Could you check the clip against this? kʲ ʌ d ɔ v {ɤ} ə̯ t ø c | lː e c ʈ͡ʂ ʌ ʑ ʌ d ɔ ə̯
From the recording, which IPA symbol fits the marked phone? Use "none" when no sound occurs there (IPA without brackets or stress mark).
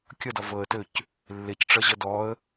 ɤ